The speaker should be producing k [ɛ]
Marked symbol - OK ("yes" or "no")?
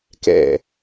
no